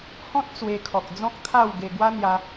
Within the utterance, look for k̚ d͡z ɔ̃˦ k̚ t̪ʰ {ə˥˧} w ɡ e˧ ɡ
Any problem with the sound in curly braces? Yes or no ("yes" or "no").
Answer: yes